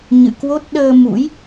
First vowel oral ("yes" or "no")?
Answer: yes